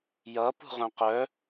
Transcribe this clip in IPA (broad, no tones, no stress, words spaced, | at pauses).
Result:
jʌ pṳʁœ̃qœ